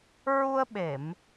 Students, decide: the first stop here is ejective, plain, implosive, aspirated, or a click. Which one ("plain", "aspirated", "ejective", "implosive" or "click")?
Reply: implosive